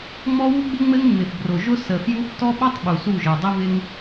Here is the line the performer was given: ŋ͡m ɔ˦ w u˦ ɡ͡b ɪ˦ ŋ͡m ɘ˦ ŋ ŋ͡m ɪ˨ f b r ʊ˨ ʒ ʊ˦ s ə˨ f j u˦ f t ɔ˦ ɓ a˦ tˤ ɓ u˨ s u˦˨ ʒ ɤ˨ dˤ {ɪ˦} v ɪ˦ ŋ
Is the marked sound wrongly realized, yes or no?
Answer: no